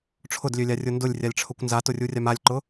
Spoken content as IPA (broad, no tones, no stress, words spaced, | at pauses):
ʈ͡ʂʰʊdlʲølʲarʲʊ ndʊlʲrʲalʲʈ͡ʂʰʊkʷ nzatʊrʲurʲam alʲǃʊ